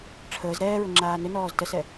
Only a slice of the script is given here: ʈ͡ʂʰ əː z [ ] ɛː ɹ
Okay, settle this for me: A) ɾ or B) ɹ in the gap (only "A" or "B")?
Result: A